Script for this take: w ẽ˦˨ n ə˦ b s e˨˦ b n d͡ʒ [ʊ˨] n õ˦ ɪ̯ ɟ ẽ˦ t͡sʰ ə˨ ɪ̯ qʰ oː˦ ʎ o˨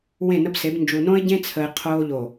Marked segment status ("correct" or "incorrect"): incorrect